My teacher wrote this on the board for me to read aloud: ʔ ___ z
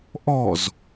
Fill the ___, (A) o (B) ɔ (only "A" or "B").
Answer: B